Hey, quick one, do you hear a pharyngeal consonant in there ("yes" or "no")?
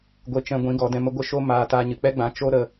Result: no